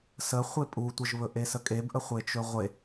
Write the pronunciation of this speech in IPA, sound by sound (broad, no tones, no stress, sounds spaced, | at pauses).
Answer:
s ə χʷ e pʼ u tʷ ə ʒ β ɵ ʔ e s ə kʼ e b ʔ ə χʷ e t͡ʃ ɵ ʁʷ e